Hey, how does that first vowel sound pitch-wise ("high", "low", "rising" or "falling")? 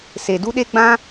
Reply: low